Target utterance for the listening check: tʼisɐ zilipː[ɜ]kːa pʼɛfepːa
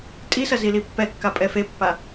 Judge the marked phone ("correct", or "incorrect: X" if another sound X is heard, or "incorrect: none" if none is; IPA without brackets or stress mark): incorrect: ɛ